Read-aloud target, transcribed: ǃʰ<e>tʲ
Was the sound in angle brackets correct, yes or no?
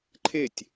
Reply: yes